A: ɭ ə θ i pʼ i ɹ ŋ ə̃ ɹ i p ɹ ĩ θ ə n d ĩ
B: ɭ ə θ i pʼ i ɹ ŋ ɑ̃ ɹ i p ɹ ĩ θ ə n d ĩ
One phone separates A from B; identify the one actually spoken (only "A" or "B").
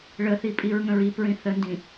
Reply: A